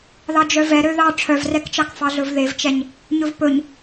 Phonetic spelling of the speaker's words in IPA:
ð ɑ d͡ʒ œ v ɛ ɾ ø ð ɑ ʈ͡ʂʰ œ v r ɛ k t͡ʃ ɑ k f ɑ ɮ ɵ v ð e v t͡ʃ ɛ ɲ | ɲ ɵ v p ɵ ɲ

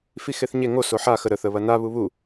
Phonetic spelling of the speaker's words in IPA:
f i x e θ ɲ e ŋ o s o ħ a x ə ɾ ə θ ə β ɐ n a β u β u

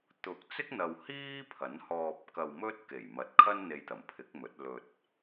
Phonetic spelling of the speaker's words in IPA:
t̪ ʊ˨˥ k̚ t͡s ɪ˥ k̚ n̪ ɐ˨ w h iː˥ pʰ ɐ˨˥ n h ɔː˧ p̚ k ɐ˧ w m ɵ˥ t̚ k e˨˩ j m ɐ˨˥ t̚ kʰ ɐ˥ n n̪ e˧ j t̪ ɐ˨˩ m pʰ ɪ˨˥ k̚ m ɵ˨˥ t̚ l ɵ˧ t̚

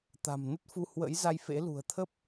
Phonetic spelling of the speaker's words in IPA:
t̪ a̤˨˩ m n ə˦˥ t̚ f u˧ h w ə̰˧˥ j z a˧ j f ḛ˧˥ l ṳ˨˩ ə̯ t̪ʰ ə˦˥ p̚

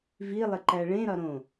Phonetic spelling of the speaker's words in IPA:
v i lˠ ɪ ǃ æ ɭ ẽ ɾ ɒ ɾ õ

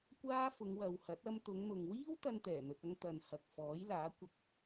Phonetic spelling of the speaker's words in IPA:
kʷ aː˥ f ʊ˨˧ ŋ w ɐ˨ w h ɐ˨˥ t̚ ɐ˧ m t̪ ʊ˨˧ ŋ n̪ ʊ˨ ŋ w iː˥ w t̪ ɐ˥ n t̪ ɛː˨˩ n̪ ɵ˧ t̚ ɐ˥ ŋ t̪ ɐ˧ n h ɐ˨ k̚ f ɔː˨˥ j l aː˨˥ kʷ ɐ˥ k̚

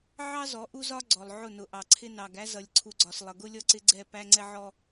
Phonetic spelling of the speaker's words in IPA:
ʕ ɑ˦ z ɔ˨˦ ʔ u˦ z ɒ˦ ɡ͡ǀ ɔ˨ lˠ ʕ ʊ˦˨ n ʊ˨˦ ʔ ɑ˨ ǀʰ ɪ˦ n ɑ˨ ɡ æ˦ z ʌ˨ lʲ ǀʰ u˨ ɡ͡ǀ ɒ˨ s lˠ ʌ˨ ɡ ʊ˦ lʲ ɔ˦ ǀ ɪ˦ ɡ͡ǀ ɛ˦˨ p æ˦ ŋ͡ǀ ɛ˦ ʕ ɔ˦

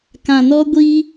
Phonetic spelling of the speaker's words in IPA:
k ã˨ n ɔ˧ ɡʷ iː˧

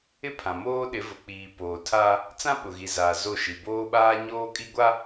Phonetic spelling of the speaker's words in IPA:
ɪ˦ pʰ ã˨ m oː˦ ɗ ɪ˨˦ v ʊ˨ k͡p iː˨ p oː˨ tʰ a˦ | t͡s ã˦ ɓ ʊ˨ ɣ i˨ z aː˨ z o˦˨ ʃ i˨ b oː˦ ɓ aː˦ ɲ oː˦ kʼ i˦ ɡʷ a˦

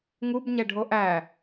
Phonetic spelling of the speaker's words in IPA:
ŋ u b ɲ ɛ ɖʱ o ʔ æ

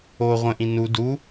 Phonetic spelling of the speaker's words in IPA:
o ʁʷ ə̃ ʔ ĩ n u d u

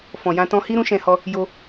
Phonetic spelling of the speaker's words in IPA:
f ɔ̃˨ j ã˧ t ɔ̃˧ h i˦ ɾ ũ˦ ʃ ɛ̃˧ h ɔ˧ | j o˧

